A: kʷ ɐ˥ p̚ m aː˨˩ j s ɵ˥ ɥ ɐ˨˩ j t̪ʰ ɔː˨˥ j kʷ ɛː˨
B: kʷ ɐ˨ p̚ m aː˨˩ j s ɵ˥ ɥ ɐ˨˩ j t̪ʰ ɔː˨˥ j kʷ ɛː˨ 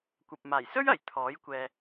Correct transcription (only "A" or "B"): B